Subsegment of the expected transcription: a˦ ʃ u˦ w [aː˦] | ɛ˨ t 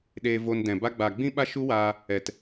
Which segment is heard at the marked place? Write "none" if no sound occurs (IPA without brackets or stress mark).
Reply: aː˧